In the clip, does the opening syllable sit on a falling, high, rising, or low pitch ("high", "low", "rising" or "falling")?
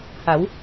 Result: rising